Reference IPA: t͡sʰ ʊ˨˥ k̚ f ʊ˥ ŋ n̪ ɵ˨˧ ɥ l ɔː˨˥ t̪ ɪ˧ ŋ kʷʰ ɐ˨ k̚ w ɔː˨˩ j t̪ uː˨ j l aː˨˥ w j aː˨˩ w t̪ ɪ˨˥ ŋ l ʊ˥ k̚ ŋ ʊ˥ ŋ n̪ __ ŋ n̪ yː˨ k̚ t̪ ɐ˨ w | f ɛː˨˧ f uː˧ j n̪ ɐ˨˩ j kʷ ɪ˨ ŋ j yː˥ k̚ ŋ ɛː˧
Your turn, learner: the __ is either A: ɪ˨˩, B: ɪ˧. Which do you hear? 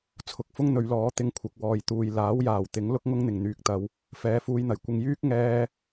A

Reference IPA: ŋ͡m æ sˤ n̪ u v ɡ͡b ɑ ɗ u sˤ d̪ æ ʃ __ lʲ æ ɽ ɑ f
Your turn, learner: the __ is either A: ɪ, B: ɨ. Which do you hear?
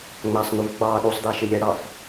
A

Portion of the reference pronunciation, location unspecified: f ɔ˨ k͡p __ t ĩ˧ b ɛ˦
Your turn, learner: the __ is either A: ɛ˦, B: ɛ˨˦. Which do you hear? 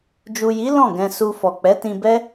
B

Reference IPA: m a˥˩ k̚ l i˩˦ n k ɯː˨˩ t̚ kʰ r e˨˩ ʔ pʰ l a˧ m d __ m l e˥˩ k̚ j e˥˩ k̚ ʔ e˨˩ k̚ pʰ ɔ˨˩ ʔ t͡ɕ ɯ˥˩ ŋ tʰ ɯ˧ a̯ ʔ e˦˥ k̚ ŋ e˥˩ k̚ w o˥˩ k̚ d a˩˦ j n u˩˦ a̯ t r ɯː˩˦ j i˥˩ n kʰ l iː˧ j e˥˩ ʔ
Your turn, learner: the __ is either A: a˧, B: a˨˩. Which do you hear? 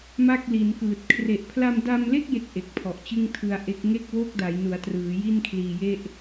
A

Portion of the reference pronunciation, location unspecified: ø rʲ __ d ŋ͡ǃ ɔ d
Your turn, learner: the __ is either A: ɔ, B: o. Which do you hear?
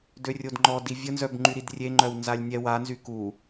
B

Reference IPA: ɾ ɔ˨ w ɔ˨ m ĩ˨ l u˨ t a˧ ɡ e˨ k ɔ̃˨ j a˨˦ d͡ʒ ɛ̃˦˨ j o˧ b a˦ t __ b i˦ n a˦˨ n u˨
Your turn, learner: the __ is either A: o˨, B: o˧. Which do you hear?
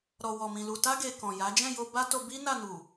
B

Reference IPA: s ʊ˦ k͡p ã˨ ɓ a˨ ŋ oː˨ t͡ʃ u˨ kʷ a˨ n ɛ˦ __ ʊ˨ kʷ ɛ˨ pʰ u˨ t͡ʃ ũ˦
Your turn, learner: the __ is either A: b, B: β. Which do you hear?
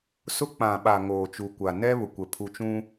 B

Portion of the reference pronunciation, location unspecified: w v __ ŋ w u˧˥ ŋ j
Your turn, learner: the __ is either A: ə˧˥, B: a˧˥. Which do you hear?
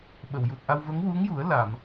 A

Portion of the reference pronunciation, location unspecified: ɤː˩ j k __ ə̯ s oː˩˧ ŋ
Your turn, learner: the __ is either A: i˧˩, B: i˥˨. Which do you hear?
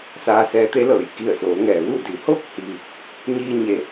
A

